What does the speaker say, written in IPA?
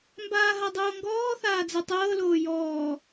mbaːɦadˤoːŋɡɔː θaːd͡zɜtˤɤː loːjɔː

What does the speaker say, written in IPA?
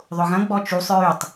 ðˤʊɣɐ̃ ɡ͡bɔt͡ʃusˤ ɹytˤ

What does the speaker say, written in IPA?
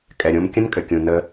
kʼɛ˨ɾʲõ˦m kʲə̃˦nkʼɘ˨kʲũ˨ nə˦

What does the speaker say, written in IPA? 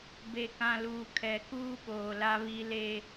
be˨kã˨luː˨ kʰɛ˨kuː˦ ɓoː˨la˦βi˦ le˦

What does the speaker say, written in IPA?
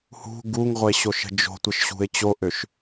hṳ ɡuŋʁʷeɕoʃə̤ d͡ʒo̤tʷəʃɕṳɪ̯ t͡ɕoʔøʃ

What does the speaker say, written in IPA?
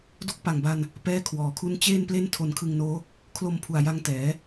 do˥˩k̚ pa˨˩ŋba˧n | pɛː˥˩kʰwɔː˨˩kʰu˥˩n t͡ɕeː˥˩nple˥˩n tʰo˧nkʰɯ˧ŋnoː˦˥ | kʰlo˧mpʰu˨˩a̯ja˧ŋ tɛː˩˦

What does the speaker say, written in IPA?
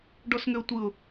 ɖɔsŋʏʊ̯tʷɯʊ̯

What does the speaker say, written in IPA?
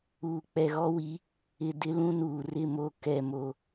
uː˨k͡pɛ˨ɣɔ˦wi˨˦ | ɪ˨ dɪ˦lũ˦nuː˨ rɪ˦˨mo˦˨ kɛ˦˨mo˦

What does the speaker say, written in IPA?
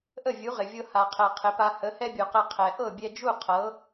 ʔə˥˩vʲu˩˥ʁɪ˩vʲɤ˧ ha˩qʰɛ˩ qʰɪ˩˥pa˧ hə˩˥hɛ˥bʲu˩qɛ˧ qʰɛ˩ ʔɤ˥˩bʲɛ˧d͡ʒu˥˩ qʰɤ˩˥

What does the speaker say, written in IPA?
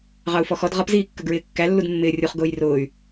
ʁɑu̯fɔxɔd ʁʌpziːkːə ɡɹɪːkːælːud mːɪːrʲuχ ɡʊːjrʊːy̯

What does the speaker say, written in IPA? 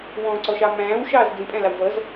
wɔ̃ǀɔʃɑ mæ̃ːwʃɑːz d͡zĩpʼæ̃lɑw vʌz

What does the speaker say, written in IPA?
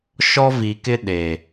ʃɔ˦vi˨kɪ˦ ɗe˨

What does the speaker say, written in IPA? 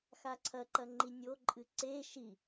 xaǀʰɐǃɐ ŋ͡ǃinʲoǃʼɨ ǀe ʃi

